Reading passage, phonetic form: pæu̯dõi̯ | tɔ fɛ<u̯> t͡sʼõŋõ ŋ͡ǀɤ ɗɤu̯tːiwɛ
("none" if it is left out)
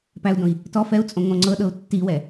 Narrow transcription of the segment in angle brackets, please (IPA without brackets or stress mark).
u̯